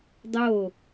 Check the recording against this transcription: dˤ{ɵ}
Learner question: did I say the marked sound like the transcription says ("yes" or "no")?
no